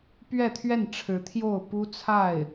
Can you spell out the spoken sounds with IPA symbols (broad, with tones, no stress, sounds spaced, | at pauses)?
p ɥ ɛ˥˧ t̪ʰ ɥ ɛ˥˩ n ʈ͡ʂʰ ɻ̩˧˥ t̪ʰ j o˥˩ ʊ̯ p u˥ t͡sʰ a˥˩ ɪ̯